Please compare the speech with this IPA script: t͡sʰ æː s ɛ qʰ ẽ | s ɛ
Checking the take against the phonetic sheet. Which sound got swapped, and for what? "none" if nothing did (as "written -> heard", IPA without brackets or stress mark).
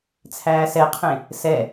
none